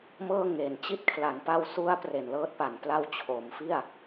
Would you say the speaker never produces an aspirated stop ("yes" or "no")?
no